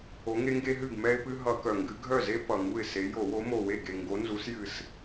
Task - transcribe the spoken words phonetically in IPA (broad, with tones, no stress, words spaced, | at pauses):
o˨˦ŋe˦ŋɡe˦ɦɨ˥˩ɡ mɛ˦ɪ̯pɨ˦ ɦʌ˧˩˧kœ˨˩ ŋɡɨ˨˦ ɡʱœ˥˩ze˦ pʌ˨˩ŋu˥˩ɪ̯se˨˦ jo˧˩˧wo˨˦mo˨˩we˥˩ ɡe˨˩ ŋɡo˨˦nzu˨˦sjɨ˨˩s